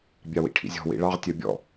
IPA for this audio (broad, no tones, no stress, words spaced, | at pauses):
bʲɑwḭʈʰḭzʲɔ̤ wḭɭɑʁ tʲœbʲɔ̰